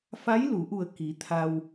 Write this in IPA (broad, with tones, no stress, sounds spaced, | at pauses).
f a˧˥ j l u˩˧ ʔ u˧˩ ə̯ k i˩˧ t̪ʰ a˧ w